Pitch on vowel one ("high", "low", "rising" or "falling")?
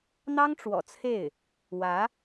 high